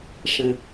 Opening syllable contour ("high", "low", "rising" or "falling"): low